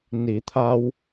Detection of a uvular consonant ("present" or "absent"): absent